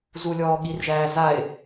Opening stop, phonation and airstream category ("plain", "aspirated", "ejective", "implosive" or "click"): implosive